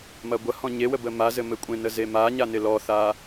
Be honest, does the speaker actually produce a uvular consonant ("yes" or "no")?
no